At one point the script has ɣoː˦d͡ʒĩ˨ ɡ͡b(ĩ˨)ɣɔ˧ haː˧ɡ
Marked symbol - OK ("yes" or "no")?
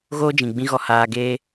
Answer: no